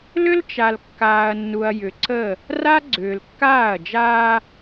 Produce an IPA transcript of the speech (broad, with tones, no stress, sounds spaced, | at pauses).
l ʏ˦ l t͡ʃ a˨ l kː aː˨ ɐ̯ nː u˨ ɐ̯ j ʏ˨ ǀ ə˦˨ | r a˦ ɡ͡ǀ ʏː˨ l kː aː˦˨ ɐ̯ d͡ʒ aː˦